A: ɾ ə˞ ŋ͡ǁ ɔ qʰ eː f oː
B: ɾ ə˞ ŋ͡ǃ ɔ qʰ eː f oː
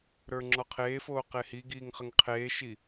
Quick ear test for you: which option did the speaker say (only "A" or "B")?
A